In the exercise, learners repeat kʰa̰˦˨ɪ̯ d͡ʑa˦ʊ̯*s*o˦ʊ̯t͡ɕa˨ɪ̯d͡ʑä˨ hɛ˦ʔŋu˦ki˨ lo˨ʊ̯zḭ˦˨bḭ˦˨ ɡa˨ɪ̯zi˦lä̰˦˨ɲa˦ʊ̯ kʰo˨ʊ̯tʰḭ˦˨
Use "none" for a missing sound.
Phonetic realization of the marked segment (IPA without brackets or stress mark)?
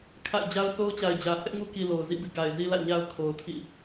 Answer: s